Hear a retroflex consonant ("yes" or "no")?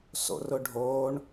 yes